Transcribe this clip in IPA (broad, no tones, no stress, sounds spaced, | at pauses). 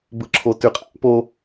b ɯ ǁʰ o t ʉ qʼ æ̰ p o